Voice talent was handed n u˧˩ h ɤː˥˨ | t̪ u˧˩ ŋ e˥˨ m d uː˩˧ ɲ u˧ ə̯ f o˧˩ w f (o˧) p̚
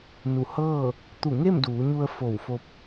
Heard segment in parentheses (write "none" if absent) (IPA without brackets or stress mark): o˧